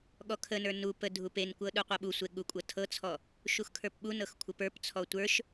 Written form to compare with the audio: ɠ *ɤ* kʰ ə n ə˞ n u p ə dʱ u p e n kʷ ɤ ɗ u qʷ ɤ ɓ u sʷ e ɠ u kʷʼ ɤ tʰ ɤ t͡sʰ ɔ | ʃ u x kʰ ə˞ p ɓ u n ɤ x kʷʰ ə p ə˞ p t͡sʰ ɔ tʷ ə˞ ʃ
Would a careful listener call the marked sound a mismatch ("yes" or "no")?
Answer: yes